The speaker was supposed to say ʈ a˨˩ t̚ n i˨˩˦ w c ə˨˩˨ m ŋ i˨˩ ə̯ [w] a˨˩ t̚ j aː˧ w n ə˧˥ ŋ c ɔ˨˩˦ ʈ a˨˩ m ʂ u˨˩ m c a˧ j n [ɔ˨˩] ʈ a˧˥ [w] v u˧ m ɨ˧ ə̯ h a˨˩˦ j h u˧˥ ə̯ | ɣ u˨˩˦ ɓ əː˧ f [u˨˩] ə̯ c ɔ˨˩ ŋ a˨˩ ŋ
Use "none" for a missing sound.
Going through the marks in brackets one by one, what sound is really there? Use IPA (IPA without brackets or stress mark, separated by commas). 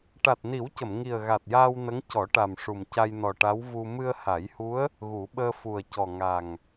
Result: ɣ, ɔ˨˩, w, u˨˩